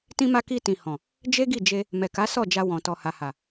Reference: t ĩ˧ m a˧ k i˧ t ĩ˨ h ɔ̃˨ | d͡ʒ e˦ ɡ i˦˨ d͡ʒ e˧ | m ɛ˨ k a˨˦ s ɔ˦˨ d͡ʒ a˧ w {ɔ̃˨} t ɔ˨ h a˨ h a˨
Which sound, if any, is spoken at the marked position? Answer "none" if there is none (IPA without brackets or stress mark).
ɔ̃˨